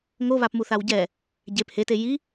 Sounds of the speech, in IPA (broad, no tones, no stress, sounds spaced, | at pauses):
ŋ o β a p m u θ a w ɟ ɛ | ɟ e p h e t e j i